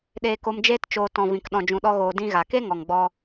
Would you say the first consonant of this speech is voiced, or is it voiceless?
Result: voiced